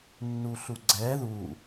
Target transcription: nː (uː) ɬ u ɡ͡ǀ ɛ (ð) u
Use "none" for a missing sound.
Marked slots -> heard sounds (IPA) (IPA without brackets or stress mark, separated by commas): u, ð